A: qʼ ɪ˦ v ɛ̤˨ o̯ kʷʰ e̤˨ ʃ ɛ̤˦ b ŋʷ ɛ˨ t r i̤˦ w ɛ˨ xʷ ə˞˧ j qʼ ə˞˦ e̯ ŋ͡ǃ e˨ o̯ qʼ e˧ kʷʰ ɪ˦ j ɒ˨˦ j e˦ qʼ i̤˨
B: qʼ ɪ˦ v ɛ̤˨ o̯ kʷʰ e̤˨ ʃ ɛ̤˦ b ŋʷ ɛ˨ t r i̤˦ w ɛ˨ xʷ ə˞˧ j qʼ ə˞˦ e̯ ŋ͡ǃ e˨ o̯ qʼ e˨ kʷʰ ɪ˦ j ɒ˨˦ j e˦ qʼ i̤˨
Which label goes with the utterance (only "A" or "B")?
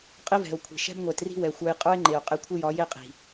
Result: A